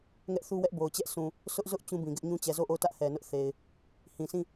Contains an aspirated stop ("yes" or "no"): no